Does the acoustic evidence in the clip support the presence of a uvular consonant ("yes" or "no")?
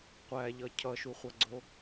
yes